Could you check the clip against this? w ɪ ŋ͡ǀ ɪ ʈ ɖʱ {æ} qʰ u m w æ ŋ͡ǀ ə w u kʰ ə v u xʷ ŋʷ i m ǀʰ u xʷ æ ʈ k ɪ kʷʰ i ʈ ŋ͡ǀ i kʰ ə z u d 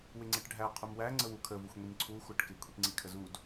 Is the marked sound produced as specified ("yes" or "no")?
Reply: yes